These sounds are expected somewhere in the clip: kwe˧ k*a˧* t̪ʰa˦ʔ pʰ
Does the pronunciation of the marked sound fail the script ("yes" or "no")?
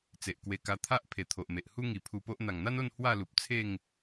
no